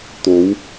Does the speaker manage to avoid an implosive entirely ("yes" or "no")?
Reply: yes